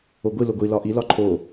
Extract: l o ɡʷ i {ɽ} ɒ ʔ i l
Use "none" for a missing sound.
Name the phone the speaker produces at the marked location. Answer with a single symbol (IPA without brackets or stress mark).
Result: l